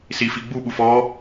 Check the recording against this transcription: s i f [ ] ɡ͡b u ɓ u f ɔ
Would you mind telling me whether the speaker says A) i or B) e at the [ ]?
A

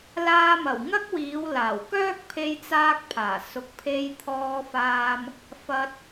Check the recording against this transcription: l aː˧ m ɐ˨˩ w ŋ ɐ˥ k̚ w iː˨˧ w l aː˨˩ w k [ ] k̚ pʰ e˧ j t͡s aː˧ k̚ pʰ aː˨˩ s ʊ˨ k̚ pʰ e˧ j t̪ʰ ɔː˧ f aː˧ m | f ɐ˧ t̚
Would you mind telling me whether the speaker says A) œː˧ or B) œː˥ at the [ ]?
B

